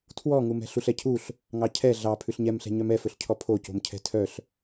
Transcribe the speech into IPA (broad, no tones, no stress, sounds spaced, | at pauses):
tʰ w ɔ ŋ u m ɛ̤ ɬ u ɬ ɛ cʰ u ɬ | ŋ ɑ cʰ ɛ ɮ ɑ pʰ ʉ ɬ ɲ ɛ m ɬ ɛ̤ ɲ œ m ɛ f ɵ ɬ cʰ ɔ pʰ o c o̤ m cʰ ɛ̤ tʰ œ ɬ